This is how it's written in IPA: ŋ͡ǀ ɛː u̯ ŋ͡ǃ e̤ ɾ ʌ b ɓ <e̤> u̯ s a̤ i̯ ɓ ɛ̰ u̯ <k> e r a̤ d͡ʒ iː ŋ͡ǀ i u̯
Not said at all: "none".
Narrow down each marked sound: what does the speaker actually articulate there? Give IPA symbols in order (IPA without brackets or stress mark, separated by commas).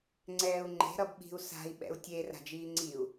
i̤, tʲ